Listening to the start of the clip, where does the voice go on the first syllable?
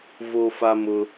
high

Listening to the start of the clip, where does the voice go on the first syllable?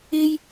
high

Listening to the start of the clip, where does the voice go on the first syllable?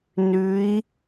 rising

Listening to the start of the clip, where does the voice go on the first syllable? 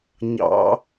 rising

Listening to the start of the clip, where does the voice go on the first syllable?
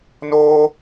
high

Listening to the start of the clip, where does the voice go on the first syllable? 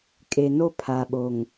low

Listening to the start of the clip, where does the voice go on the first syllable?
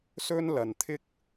high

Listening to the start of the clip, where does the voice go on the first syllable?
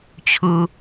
low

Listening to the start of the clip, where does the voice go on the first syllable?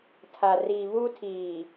low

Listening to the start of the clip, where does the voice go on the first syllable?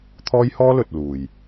high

